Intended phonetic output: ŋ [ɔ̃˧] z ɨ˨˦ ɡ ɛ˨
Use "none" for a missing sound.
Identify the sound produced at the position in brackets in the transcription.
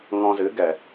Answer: ɔ̃˧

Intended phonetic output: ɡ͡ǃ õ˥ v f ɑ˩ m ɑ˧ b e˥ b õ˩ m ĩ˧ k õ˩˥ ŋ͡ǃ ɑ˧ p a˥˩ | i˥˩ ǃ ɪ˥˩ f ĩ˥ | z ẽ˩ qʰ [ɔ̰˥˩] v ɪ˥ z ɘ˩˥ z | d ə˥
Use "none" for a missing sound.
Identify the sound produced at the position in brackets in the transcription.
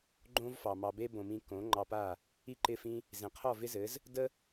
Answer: ɔ˥˩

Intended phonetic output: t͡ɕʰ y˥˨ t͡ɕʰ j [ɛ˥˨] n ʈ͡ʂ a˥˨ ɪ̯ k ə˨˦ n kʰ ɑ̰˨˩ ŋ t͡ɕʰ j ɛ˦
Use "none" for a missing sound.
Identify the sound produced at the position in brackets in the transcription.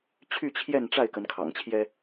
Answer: ɛ˥˨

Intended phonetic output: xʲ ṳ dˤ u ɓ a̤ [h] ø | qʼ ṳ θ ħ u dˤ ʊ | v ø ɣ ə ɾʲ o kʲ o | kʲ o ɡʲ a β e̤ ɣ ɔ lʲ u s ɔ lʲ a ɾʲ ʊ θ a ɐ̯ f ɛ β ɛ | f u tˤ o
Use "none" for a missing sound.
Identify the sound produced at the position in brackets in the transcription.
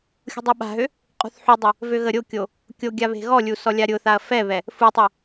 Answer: ɦ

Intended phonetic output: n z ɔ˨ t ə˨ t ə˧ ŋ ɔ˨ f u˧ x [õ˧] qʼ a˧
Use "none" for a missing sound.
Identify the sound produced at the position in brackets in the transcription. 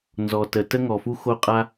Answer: o˧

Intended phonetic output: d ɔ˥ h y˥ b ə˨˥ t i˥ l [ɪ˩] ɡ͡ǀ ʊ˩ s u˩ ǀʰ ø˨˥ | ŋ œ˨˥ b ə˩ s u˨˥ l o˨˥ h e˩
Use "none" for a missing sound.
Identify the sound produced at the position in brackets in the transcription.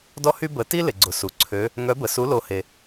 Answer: ɪ˩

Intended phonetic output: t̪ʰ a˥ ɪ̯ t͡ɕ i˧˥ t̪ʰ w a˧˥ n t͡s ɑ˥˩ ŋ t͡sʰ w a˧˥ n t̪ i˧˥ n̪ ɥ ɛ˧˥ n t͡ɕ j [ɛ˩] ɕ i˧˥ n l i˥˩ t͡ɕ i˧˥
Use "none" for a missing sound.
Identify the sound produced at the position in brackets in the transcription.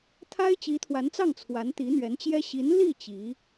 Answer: ɛ˥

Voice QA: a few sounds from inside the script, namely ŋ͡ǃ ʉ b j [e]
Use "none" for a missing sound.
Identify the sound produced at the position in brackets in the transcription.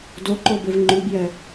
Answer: ɛ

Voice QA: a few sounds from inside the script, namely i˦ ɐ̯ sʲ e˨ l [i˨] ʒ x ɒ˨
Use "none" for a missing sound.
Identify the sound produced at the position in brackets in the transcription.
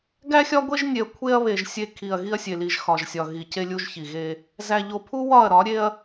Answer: i˨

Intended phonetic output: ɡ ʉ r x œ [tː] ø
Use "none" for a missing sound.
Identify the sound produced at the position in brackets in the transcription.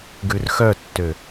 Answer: tː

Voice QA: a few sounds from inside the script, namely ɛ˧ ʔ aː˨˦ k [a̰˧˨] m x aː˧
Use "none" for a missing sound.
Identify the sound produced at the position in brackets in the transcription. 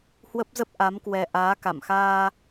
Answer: a̰˧˨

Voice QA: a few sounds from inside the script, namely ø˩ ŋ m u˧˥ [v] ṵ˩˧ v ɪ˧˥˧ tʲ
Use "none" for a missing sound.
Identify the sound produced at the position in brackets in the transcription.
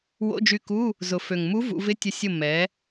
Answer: v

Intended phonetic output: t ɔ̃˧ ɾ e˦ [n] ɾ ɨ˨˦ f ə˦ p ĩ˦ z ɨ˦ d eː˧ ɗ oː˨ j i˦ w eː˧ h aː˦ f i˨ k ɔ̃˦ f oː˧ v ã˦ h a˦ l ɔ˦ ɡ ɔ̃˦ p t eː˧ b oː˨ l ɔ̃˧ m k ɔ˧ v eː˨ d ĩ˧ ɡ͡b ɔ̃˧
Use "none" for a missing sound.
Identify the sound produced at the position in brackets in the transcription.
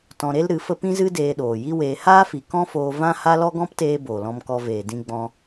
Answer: l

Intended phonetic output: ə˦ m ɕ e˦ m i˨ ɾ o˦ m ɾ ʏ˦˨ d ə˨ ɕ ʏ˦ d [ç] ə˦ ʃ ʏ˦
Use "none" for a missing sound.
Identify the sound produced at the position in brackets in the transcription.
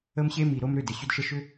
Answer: ʃ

